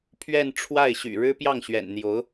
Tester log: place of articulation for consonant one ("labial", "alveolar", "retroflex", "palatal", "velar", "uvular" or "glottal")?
labial